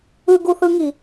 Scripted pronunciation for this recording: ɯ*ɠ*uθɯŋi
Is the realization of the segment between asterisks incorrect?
yes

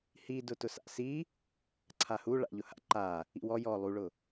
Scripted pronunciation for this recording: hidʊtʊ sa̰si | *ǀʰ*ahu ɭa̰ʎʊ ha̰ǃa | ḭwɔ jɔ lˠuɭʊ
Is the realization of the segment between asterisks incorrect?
no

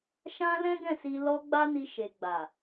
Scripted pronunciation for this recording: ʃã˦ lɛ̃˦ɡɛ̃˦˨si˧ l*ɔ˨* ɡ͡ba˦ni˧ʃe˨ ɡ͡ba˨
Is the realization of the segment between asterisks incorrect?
yes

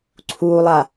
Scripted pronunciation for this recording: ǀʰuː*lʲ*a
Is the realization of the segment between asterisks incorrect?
yes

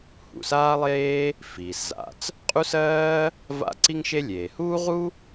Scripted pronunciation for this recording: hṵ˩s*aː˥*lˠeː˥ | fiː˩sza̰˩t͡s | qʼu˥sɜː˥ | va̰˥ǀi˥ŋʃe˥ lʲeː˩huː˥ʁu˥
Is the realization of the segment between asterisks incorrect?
no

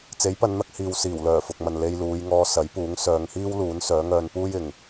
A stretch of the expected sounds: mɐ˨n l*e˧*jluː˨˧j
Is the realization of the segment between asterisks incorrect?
no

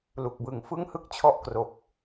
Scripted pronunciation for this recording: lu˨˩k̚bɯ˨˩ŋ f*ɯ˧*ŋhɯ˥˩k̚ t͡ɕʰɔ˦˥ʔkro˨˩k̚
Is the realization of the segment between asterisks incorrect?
yes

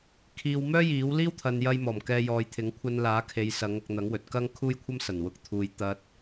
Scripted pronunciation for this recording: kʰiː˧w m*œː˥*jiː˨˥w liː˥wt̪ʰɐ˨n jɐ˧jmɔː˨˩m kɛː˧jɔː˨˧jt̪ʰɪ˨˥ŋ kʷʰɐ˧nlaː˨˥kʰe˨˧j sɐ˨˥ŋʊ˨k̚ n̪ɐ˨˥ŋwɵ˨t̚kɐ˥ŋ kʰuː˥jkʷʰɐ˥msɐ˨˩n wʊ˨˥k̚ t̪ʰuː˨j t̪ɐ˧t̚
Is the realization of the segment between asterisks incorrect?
no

